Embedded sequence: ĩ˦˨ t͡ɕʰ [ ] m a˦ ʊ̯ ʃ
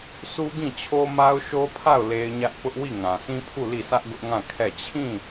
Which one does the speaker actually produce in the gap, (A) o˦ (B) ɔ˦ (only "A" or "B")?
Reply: A